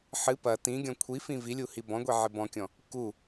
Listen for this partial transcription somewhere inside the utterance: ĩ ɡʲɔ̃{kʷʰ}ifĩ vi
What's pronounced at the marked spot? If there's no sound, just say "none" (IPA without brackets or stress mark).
kʷʰ